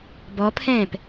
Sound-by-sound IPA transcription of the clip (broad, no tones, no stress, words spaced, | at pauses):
bɔpʰɛ̃ːp